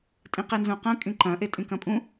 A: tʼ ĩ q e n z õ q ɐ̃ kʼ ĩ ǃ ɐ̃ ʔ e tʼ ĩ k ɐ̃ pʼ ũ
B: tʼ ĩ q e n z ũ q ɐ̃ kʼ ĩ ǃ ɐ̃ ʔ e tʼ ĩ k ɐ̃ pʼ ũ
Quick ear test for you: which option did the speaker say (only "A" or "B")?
B